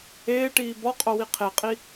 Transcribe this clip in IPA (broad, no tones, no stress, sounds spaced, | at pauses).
eː ʈ iː b ɒ qʼ o w i qʰ e qʼ i